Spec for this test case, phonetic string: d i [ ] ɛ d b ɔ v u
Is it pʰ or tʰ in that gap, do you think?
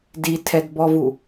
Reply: tʰ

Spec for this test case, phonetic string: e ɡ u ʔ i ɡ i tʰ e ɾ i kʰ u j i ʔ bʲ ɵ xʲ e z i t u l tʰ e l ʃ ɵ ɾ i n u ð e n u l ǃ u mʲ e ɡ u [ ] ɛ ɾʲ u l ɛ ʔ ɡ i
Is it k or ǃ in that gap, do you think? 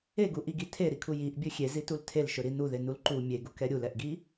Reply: k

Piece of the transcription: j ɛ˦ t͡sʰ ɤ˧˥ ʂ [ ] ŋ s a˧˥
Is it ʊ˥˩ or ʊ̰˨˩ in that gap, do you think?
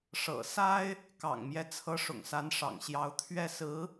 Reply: ʊ̰˨˩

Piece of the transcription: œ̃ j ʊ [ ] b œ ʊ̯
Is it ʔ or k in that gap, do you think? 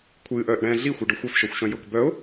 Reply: k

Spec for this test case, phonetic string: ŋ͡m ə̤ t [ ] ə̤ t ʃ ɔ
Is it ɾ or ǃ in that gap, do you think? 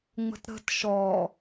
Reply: ɾ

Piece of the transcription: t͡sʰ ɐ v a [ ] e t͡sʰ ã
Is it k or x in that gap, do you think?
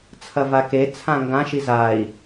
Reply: k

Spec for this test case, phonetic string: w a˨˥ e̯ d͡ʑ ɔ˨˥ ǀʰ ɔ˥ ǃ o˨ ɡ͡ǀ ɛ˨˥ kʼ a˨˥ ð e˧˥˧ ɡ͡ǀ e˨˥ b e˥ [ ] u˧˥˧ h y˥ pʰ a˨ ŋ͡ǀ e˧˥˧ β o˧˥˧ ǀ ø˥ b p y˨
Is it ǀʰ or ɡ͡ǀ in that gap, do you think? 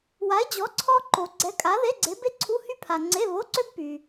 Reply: ǀʰ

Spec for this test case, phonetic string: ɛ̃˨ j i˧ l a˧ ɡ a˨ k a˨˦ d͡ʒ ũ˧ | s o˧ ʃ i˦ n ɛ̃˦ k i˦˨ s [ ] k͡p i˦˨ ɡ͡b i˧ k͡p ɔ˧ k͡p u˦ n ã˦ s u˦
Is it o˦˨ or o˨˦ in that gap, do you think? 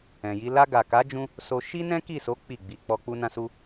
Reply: o˨˦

